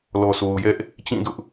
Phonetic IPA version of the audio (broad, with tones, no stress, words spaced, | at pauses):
lɔ˨so˨ʊ̯jɛ˦ʔ | t͡ɕĩ˦˨dʊ˦ʔ